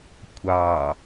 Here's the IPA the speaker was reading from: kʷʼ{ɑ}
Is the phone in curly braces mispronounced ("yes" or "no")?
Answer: no